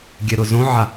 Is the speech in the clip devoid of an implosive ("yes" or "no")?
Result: yes